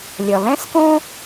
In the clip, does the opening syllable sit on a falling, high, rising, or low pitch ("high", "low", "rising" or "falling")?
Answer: low